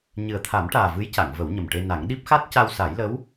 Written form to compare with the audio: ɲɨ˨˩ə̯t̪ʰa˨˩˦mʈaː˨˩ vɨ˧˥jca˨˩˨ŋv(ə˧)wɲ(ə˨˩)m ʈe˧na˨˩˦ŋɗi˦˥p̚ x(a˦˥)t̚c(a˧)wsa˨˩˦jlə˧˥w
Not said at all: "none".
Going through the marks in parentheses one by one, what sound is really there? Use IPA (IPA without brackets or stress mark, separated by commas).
ə˨˩˦, ə˨˩, a˦˥, a˧